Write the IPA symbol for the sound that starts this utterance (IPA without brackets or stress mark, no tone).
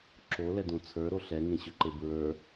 ǁ